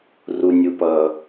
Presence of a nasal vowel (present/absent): absent